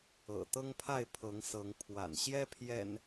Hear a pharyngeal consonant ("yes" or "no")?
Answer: no